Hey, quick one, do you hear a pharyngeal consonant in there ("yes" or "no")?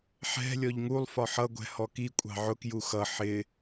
yes